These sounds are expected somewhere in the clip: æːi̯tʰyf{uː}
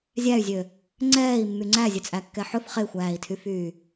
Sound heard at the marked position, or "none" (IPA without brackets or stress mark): yː